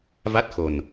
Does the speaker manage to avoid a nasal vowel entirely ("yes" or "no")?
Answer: yes